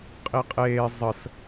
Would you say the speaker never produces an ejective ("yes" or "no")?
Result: no